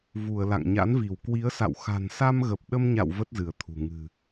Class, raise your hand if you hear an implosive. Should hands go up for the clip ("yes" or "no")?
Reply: yes